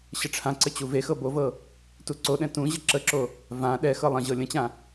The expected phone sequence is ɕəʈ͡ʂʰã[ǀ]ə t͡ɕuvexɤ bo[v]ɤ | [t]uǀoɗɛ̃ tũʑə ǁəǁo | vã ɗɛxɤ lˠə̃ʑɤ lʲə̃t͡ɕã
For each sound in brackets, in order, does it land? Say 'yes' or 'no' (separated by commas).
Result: yes, yes, yes